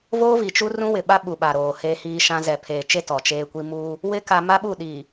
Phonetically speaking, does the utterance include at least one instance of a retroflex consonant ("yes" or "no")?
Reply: no